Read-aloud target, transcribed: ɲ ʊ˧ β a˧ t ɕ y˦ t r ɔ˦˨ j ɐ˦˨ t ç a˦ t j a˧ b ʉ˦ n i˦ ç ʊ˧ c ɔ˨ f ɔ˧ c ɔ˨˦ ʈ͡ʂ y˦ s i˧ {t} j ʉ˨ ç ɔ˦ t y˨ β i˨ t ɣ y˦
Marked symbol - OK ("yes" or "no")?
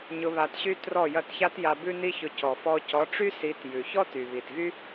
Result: yes